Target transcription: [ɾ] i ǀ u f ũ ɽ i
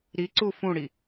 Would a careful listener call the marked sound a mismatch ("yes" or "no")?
no